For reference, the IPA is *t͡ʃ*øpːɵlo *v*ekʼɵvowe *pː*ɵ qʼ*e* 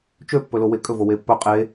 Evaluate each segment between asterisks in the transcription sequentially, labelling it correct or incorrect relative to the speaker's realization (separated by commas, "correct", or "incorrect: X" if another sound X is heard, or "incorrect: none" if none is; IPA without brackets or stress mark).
correct, incorrect: w, correct, correct